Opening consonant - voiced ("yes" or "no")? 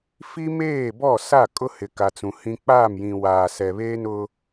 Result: no